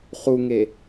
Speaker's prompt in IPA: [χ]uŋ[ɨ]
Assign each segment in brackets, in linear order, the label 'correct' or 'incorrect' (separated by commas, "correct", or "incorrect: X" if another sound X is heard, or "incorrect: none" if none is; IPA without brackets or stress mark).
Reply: correct, incorrect: e